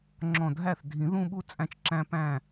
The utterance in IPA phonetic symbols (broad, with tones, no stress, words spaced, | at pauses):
ŋ͡ǁɔ̃˧˩dʱæ˥˩θ dʱĩ˨˩˦ðũ˥˧ɓu˥˧ t͡sʼæ̃˧˩t͡ʃǁæ̃˧pæ̃˧˩